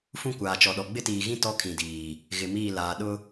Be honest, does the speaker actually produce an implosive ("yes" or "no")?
yes